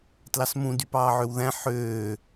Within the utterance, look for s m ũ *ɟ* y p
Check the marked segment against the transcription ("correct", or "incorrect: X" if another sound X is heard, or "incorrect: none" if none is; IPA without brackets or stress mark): incorrect: d